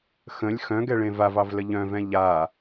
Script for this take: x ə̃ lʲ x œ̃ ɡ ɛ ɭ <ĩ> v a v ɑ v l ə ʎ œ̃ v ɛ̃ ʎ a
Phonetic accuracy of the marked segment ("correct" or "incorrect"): incorrect